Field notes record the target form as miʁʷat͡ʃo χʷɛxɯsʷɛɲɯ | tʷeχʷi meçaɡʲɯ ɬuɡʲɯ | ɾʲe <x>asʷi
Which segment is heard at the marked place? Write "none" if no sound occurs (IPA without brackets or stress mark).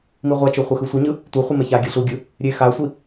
x